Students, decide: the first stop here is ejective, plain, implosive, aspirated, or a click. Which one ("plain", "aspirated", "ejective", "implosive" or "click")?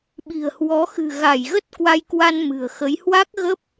implosive